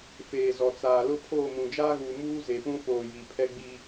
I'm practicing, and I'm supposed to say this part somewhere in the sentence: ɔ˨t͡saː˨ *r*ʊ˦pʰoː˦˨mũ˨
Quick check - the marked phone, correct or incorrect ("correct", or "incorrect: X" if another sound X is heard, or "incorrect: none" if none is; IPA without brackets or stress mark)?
incorrect: l